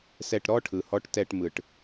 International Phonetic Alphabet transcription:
sɛ˥˧ʈ ɾɔ˥˧ʈʰɯ˨hɔ˧˥ʈ tɛ˥˧ʈmɯ˨ʈ

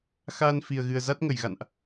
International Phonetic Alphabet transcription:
xaː˧n fi˨˩ə̯ɣɨ˨˩ə̯ za˦˥t̚ŋə˧˩j ɣa̰˧˨nʔ

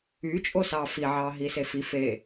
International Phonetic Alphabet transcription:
yt͡ʃʼosɑ fiʕɑ ɦisefi fe

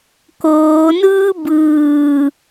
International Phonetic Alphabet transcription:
koːnɯː bɯː

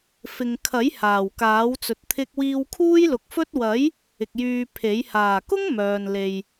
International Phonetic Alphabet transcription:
fɪ˨ŋkʰɐ˨˥j haː˨˩wkaː˨˥wt͡sɵ˨t̚ t̪ʰɪ˧k̚wiː˧w kʰuː˥jlʊ˨˥k̚fɵ˥t̚ wɐ˨˥j | ɪ˨k̚ jyː˧pʰe˨˥j haː˨˩kʊ˥ŋ mœː˨nle˨j

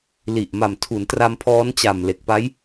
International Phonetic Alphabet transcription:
li˨˩ʔma˨˩mtʰu˩˦n tra˧mpʰɔː˦˥nt͡ɕa˨˩m le˨˩k̚pa˦˥j

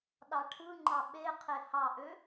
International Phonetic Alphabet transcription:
ɗɑʈʰɯŋ͡ǃɑ ɓeqʰe hɑʔø

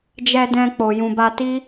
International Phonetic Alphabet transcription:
d͡ʒɛ˧dɛ̃˧ k͡po˨jũ˨ba˧ti˦

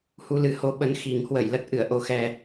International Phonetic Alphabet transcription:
hu˧lɨ˨˦ho˧ ɓə˨˦n xi˨˩ŋhwə˧˩j lə˦˥t̚ʔɨ˧˩ə̯ ʔo˨˩xɛ˨˩

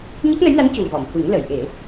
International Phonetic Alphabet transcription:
ɲə˦˥k̚nə˧˥jna˧˥n cu˨˩vɔ˨˩˨mhu˨˩˦ŋ lə˨˩˨jʔe˨˩˦

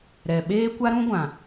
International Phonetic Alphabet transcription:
ɾɛ˨ɓeː˦ kʷa˦ɾũ˦ ɡʷã˨

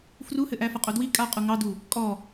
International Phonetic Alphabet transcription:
fruhɘʔæ fɐqʼodwi kʼaqʼu ŋɑdu | kʼɔ

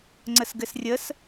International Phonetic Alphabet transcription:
ŋ͡ǀəsɡɘsrʲəs

